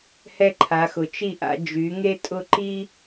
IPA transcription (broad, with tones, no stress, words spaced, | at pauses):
hɛ˧ǃʰa˩˧xʊ˩˧ t͡ʃi˧˩ʔa̰˩˧ d͡ʒy˩˧ ŋe˥tʼʊ˥˧ ǃi˥